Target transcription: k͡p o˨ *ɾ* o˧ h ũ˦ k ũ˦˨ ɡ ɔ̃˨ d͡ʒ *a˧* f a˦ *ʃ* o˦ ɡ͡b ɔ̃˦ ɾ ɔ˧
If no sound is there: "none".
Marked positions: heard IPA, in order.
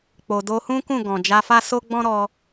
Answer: d, a˧, s

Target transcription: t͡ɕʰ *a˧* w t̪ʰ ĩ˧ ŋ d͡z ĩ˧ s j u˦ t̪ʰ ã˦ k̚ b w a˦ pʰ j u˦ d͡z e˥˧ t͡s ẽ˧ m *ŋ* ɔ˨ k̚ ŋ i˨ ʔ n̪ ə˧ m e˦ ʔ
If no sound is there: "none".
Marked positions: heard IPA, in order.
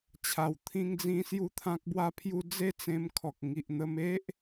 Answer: a˨˩, kʰ

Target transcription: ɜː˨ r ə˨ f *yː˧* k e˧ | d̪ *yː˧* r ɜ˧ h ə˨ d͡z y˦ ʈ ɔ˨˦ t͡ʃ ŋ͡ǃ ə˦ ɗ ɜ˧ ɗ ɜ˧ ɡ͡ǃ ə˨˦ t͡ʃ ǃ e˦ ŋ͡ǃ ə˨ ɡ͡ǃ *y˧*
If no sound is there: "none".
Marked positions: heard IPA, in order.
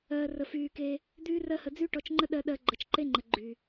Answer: yː˨, yː˧, y˨

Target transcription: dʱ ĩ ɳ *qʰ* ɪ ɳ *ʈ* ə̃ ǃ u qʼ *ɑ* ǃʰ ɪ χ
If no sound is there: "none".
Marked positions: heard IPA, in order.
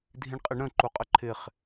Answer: qʼ, ɾ, ə

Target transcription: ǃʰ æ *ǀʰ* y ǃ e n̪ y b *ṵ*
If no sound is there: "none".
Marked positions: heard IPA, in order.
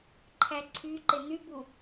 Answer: ǀʰ, u

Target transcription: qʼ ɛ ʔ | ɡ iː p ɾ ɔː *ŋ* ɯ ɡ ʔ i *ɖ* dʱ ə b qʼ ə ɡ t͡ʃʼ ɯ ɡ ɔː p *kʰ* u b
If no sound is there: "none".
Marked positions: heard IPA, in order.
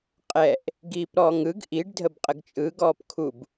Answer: ŋ, ɖ, kʰ

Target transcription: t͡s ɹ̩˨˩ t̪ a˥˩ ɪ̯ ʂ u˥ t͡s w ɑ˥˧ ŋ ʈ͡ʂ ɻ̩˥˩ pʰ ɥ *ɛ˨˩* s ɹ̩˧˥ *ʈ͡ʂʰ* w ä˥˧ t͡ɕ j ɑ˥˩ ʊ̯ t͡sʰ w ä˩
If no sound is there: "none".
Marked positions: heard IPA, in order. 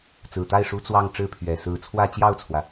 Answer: ɛ˨˩, t͡sʰ

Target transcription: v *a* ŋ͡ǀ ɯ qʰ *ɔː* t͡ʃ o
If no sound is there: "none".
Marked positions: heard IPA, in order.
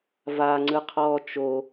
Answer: a, ɔː

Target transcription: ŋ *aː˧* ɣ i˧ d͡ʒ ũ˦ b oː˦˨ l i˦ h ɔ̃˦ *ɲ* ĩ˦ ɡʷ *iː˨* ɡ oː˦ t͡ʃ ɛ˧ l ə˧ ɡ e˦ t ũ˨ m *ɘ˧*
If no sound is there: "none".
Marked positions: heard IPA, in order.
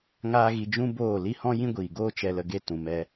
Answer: aː˦, j, iː˨, ɛ˧

